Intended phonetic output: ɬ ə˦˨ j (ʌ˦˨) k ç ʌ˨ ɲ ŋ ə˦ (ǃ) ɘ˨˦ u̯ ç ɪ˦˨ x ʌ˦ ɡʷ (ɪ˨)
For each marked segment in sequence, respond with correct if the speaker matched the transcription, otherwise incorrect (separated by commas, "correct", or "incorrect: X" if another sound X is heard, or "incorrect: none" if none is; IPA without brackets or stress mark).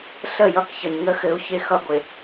correct, incorrect: x, correct